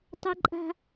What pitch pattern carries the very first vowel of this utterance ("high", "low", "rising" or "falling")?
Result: high